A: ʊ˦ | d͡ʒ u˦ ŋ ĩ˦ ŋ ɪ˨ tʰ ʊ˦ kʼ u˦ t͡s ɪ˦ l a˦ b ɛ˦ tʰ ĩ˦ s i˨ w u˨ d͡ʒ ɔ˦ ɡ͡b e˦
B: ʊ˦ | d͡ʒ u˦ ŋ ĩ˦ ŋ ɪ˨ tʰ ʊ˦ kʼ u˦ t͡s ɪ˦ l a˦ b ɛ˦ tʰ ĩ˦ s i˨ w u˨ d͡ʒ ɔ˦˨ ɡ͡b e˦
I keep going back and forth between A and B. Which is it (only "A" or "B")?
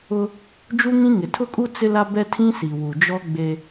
A